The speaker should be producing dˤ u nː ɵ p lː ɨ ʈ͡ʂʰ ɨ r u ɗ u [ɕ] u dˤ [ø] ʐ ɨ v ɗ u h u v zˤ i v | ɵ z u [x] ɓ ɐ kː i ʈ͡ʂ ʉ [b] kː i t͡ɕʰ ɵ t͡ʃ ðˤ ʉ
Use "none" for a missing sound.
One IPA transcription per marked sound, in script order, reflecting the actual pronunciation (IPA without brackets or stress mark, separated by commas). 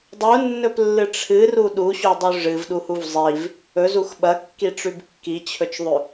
ɕ, ʉ, x, b